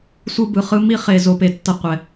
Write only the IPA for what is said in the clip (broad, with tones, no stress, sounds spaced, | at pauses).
sʷ ɯ˦ b ɯ˨ χ ɯ˦ m i˦ χ e˨ z o˦ p e˨ tː ʌ˦ qʷ ɛ˨